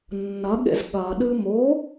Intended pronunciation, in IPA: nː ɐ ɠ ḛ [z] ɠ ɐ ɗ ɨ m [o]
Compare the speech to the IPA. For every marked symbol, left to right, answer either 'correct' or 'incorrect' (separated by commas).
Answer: correct, correct